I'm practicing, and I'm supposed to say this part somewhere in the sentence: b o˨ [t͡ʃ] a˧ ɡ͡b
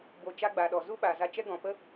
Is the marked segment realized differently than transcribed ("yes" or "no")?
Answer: no